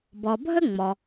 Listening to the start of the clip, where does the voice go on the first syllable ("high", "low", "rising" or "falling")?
low